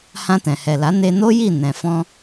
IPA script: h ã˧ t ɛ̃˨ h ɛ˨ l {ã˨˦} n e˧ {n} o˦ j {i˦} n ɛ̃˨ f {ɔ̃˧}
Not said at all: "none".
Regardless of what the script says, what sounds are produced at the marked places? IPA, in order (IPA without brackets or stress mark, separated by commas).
a˨˦, n, i˦˨, ɔ̃˧